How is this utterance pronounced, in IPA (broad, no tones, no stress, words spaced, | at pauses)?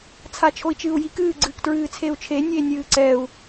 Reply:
t͡sʰat͡ʃʰoi̯t͡ʃɨːu̯jik ɨː ɡ͡ǀɨːktɹɨːt͡sʰeu̯t͡ʃʰe nʲeːnʲɨːǀɛu̯